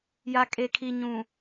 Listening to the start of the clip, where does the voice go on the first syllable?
low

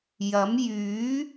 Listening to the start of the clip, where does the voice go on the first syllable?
rising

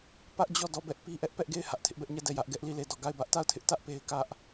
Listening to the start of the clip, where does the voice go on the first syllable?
high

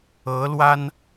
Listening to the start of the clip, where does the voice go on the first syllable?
rising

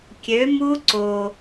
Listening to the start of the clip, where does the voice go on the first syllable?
rising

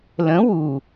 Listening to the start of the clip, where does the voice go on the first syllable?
rising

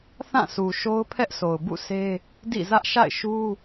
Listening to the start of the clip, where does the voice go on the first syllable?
falling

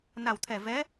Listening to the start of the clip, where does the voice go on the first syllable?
low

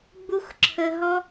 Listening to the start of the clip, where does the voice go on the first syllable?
high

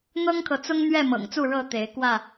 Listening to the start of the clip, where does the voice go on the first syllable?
high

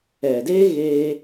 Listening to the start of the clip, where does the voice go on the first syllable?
low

